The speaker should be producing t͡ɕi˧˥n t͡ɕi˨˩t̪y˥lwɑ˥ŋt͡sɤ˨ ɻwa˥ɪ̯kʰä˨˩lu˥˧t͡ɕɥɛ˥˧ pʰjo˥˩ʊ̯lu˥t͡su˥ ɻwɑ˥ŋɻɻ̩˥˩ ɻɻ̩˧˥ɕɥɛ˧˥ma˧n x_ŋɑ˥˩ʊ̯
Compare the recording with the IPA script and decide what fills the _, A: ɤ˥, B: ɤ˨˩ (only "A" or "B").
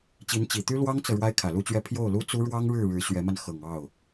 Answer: B